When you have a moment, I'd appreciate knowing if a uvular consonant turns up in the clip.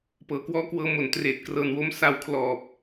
no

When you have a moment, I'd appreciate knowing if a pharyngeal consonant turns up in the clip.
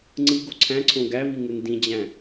no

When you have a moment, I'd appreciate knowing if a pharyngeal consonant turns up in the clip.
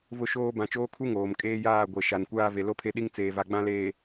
no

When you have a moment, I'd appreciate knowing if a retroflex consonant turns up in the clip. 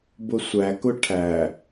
yes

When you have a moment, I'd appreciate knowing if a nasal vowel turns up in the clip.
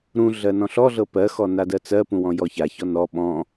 yes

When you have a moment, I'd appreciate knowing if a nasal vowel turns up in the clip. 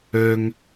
no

